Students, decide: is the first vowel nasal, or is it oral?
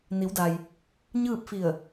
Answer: oral